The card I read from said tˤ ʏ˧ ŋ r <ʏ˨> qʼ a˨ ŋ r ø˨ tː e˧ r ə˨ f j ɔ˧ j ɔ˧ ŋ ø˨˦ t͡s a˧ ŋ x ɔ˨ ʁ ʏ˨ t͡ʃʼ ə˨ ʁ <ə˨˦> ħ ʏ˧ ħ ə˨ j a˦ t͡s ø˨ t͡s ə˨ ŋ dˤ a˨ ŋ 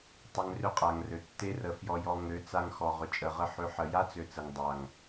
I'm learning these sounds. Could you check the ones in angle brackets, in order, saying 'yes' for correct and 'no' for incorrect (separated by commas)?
no, no